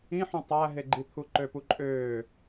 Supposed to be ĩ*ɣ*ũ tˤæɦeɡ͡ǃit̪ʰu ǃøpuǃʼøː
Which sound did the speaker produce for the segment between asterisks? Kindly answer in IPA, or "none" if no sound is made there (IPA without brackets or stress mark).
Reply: ħ